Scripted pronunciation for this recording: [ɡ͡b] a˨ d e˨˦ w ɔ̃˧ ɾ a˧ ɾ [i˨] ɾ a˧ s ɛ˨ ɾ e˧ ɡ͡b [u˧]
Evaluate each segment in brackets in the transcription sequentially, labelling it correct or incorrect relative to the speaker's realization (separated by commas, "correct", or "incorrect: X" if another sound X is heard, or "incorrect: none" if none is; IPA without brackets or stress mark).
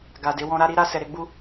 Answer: incorrect: ɡ, incorrect: i˦, incorrect: u˦